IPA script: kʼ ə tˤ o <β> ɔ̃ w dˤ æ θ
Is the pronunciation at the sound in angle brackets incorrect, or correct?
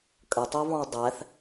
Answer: correct